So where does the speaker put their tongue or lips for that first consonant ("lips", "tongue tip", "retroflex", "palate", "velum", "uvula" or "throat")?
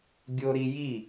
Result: velum